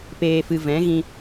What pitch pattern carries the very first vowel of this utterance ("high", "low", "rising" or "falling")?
low